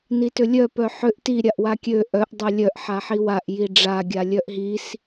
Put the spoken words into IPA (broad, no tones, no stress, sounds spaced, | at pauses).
n i t ʏ lʲ œ p œ ħ ʏ ʔ t i ɾʲ a ʔ w a kʲ ø ʔ œ ʔ dˤ œ lʲ œ ʔ ħ a ħ i w a ʔ j i ɖ͡ʐ a ɡʲ a lʲ œ ʔ ɦ i s